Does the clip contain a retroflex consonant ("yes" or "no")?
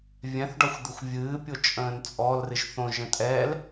yes